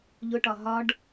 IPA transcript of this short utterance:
ʎʊʈɒ ɦɒɖ

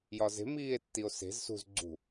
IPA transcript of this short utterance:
jɒze̤ miːe̯tːio̯se̤z sṳz ɡ͡ǀṳ

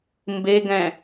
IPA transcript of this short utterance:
mbeɡɛ̃

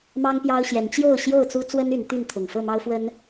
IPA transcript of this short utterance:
mɑ˦ŋpjɑ˦ʊ̯ɕjɛ˨˦n t͡ɕjo˥˨ʊ̯ ɕjo˥˨ʊ̯t͡su˦ t͡swə˦n y˨˦nt̪y˥˨nt̪ʰʊ˨˩ŋ fɤ˥˨mɑ˦ʊ̯fwə˦n

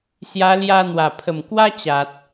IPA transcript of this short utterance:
sja˧ lja˧n̪wa˨˩pʰə˨˩mkwa˦ t͡ɕa˨t̚

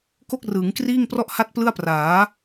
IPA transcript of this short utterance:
ko˥˩k̚rɯː˩˦ŋkriː˥˩ŋ prɔ˥˩ʔha˥˩t̚plɯ˥˩a̯praː˩˦

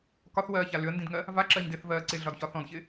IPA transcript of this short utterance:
kɒθwɜːça lʏə̯ndĩdŋɜ | vaǁɜɲdɪːθvɜː ǀɪɮɒdçɒ θɔ̃dçɪː

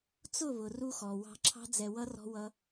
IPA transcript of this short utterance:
t͡sʊ˦˨βʊ˨ ru˧xɔ˨ wɑ̤˧ǁʰɑ̤˦ d͡zɛ˧wʌ˦rɔ̤˦wʌ˦

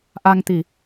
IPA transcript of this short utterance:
ʔa˧ŋt̪i˨˩˨

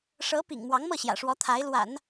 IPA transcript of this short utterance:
ʂɤ˧˥ pḭ˨˩ŋ mwɑ˧˥ŋmɤ˥˩ɕjä̰˨˩ʂwɔ˧˥ t̪ʰa˧˥ɪ̯lwa̰˨˩˦n

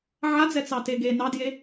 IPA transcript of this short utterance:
ʕad͡zɛ t͡sɑteɡe nɑdje

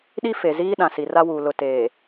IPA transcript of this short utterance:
ɗi˦ fe˨ziː˦ ɗã˨si˨ra˦wuː˨ lʊ˨teː˨

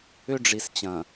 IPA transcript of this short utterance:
ʏ˦ɖ͡ʐi˨st͡ɕɐ̃˨

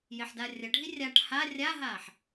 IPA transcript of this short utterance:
jeħdarʲɐɖʱi rʲaʈ ha rʲaɦaħ

